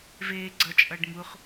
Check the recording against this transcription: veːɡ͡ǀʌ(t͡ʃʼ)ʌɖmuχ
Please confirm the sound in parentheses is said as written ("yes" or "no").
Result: yes